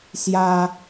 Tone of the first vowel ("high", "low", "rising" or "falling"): high